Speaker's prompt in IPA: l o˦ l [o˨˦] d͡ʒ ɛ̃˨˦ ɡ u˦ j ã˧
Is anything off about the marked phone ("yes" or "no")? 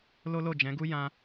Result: yes